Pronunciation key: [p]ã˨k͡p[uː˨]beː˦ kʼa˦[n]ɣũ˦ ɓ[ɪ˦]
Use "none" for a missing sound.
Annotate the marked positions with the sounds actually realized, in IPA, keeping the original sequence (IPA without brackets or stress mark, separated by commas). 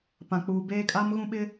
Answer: p, uː˨, m, ɪ˦